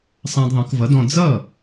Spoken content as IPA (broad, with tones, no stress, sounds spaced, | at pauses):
sˤ ã˧ d ðˤ ə̃˩˥ k v ʌ˩˥ d ɔ̃˧ d͡z ʌ˥˩